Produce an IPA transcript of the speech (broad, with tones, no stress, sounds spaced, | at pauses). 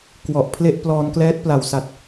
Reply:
k w ɔ˨˩ ʔ pʰ l e˦˥ ʔ p l ɔː˧ n k l ɛː˦˥ t̚ p l a˨˩ w s a˨˩ t̚